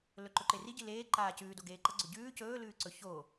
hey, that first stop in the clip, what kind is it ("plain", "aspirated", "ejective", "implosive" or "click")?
click